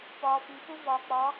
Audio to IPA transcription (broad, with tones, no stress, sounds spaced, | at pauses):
p ɒː˨ f i˨ f u˦ v ɒː˨ k͡p ɒ˨˦